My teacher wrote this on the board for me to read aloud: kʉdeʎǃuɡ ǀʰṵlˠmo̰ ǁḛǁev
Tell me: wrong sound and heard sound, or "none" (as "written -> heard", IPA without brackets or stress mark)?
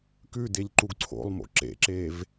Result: ṵ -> o̰